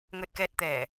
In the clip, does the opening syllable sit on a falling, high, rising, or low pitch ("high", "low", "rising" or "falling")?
low